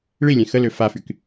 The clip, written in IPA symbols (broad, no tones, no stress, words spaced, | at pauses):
ɭilʲɛ̃ xəlø fafyk